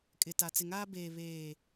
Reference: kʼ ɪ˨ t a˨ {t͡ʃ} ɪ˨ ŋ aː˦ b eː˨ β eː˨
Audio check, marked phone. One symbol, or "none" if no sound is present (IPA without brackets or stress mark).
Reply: t͡s